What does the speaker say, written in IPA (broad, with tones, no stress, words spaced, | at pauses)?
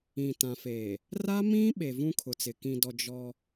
ĩ˨tã˨feː˨ | ra˦mĩ˦ ɓe˨vũ˦kʰʊ˨t͡sɪ˨ kĩ˨dɔ˨ d͡ʒɔ˦